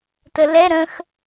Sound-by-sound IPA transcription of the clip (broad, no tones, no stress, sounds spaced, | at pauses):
t ə l ɛ ɾ ə̃ x